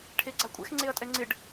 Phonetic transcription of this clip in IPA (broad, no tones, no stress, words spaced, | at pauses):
ʈʰeɡ͡ǀakʷʼɛ̰x ŋ͡ǀeɐ̯tʼɛŋ͡ǀɪɖ